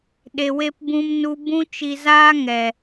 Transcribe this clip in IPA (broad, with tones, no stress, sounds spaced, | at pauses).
ɗ e˧ w e˦ p b ũ˦ m n u˦ b ũ˦ t͡ʃ i˧ z aː˦ ŋ ɛ˨